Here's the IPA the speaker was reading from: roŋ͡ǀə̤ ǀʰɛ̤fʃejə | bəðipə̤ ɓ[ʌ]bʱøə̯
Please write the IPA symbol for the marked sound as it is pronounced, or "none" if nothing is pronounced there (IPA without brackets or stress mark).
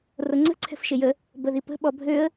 ɔ